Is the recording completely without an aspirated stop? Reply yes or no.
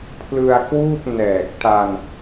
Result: no